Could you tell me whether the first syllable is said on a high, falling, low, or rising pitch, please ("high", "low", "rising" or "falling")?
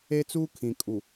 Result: high